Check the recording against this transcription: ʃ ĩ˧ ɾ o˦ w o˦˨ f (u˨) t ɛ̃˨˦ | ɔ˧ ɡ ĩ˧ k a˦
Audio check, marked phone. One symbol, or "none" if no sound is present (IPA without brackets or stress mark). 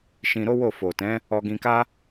o˨